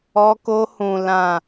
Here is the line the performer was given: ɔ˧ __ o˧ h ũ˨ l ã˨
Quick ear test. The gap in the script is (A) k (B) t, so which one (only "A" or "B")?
A